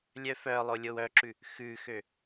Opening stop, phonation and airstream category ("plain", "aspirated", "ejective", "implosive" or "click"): click